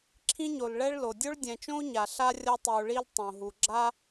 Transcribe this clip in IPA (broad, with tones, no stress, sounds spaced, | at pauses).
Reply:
ǁʰ ĩ˥ ɲ o˨ l ɭ ɛ˥ ɭ l o˩ dʲ o˥ ɭ dʲ ɛ̃˨ t͡ʃ õ˥ u̯ ɲ a˩ ɬ a˥ rʲ ʌ˦ tˤ i˩ u̯ ɭ i˦ l tˤ õ˩ ɦ u˩ ɡ͡ǁ a˥